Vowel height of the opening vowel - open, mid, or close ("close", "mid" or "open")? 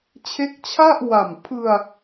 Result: mid